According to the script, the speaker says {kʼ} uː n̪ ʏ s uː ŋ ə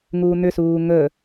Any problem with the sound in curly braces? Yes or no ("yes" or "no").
yes